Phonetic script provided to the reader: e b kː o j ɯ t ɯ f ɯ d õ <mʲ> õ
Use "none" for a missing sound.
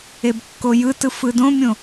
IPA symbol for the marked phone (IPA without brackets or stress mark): mʲ